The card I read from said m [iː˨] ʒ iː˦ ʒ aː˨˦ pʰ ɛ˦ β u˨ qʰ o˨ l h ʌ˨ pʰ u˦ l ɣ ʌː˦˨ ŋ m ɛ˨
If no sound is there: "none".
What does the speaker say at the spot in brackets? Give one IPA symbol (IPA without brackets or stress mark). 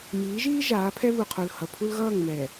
iː˨˦